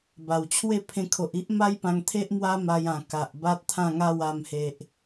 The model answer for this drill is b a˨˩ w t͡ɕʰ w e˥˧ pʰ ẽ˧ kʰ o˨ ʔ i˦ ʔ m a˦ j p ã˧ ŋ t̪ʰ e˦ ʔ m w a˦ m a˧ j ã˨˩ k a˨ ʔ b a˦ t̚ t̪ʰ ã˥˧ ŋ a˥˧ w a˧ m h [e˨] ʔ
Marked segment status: correct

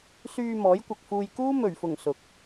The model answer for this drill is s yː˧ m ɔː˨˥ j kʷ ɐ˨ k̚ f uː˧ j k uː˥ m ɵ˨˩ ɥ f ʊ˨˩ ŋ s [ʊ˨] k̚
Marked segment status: correct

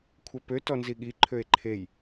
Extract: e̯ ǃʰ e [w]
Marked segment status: incorrect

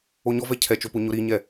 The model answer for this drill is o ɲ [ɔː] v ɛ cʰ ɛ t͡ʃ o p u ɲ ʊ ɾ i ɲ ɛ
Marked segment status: incorrect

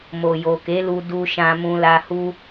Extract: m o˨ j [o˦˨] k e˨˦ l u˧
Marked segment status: incorrect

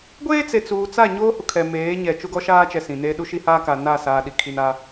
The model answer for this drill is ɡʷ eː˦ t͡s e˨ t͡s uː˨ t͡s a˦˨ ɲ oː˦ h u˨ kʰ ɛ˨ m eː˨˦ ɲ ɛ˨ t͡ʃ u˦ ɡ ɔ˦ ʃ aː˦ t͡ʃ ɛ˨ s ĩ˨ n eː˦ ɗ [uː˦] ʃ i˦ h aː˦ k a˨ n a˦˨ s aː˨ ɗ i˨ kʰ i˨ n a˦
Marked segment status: incorrect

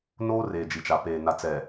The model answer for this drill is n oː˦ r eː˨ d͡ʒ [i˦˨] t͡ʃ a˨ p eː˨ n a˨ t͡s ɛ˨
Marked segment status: incorrect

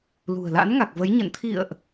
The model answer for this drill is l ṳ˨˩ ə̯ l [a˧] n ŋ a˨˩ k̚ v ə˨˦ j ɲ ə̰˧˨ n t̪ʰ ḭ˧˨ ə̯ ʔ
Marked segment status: incorrect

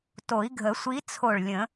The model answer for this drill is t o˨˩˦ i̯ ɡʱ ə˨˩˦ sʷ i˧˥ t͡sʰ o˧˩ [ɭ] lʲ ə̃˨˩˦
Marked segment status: correct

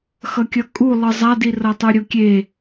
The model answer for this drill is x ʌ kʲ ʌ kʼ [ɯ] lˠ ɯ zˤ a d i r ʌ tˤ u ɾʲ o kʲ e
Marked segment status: incorrect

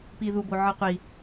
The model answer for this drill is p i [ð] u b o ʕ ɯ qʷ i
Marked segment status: correct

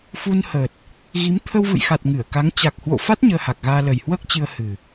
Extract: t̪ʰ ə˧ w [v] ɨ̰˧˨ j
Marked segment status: correct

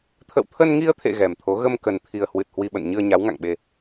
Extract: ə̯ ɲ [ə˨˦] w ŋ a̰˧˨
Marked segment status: incorrect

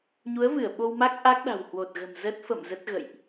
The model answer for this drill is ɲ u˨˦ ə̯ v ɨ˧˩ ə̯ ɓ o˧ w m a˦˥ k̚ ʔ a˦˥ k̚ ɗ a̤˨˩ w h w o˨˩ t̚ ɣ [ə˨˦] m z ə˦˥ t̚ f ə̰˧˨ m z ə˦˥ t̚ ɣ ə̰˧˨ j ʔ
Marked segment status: incorrect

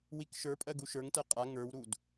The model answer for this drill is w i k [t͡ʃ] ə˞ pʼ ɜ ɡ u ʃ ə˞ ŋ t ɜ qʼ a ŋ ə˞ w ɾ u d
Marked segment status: incorrect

